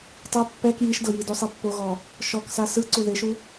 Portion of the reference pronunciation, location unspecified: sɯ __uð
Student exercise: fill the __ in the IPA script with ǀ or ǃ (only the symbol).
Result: ǀ